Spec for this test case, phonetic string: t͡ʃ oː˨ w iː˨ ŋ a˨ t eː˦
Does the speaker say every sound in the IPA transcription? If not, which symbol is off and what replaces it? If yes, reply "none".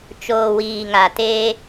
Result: none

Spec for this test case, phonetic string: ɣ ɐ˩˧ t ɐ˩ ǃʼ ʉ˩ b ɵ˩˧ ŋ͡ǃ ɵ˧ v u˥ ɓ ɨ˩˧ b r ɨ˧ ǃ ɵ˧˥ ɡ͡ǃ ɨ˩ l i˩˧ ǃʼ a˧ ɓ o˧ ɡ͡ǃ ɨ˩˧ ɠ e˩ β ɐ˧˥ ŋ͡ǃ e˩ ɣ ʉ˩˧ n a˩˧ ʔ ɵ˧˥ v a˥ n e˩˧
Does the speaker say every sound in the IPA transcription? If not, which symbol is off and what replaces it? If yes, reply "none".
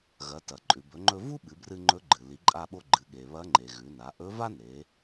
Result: ǃ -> ŋ͡ǃ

